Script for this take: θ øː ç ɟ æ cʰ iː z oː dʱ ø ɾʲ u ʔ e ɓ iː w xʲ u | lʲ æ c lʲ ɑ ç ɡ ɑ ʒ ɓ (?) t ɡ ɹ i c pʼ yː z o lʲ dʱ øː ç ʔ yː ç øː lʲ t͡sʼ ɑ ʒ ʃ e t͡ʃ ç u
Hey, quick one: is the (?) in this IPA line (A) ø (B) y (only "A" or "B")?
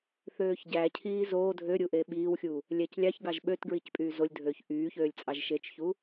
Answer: A